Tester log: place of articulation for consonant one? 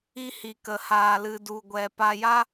glottal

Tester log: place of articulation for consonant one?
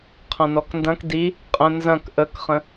uvular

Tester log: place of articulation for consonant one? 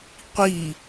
uvular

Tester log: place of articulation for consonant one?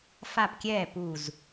labial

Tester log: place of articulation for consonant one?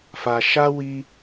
labial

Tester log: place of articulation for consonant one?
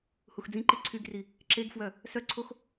glottal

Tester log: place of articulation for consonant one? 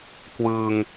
velar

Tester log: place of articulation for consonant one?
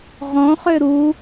uvular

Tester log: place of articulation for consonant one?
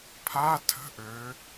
labial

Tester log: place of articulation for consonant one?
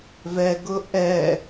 labial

